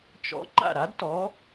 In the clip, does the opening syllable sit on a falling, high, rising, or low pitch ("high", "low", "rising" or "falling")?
rising